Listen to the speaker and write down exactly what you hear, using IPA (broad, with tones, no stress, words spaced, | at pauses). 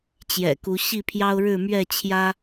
t͡ɕjɛ̰˨˩ku˨˦ ɕi˥˨pʰjɑ˦ʊ̯ ɻɻ̩˥˨mɥɛ˥˨t͡ɕʰjä˦